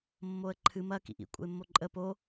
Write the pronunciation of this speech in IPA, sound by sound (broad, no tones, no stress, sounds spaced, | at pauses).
mː o ə̯ ǃʰ ɨ m ɐ k ḭ ʔ ḭ kʷʼ ə̰ ɪ̯ mː o ǃʼ ə p o